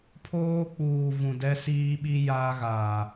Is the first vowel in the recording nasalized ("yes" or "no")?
no